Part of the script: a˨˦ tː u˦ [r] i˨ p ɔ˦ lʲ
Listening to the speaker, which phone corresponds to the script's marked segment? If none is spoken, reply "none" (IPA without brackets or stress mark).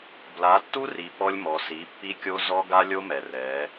r